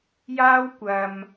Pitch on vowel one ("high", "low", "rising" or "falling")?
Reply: high